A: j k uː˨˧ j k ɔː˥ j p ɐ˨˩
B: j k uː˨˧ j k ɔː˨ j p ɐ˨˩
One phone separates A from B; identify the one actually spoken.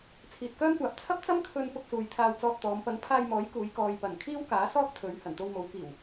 B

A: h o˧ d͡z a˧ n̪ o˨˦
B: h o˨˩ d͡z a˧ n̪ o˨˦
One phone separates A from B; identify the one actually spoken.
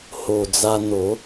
B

